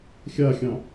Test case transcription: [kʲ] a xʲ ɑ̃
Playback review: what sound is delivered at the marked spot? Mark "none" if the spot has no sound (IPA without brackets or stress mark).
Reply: xʲ